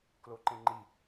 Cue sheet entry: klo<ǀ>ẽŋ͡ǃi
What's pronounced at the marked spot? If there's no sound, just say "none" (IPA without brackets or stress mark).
ǃ